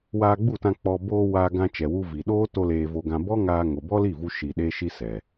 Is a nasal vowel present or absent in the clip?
present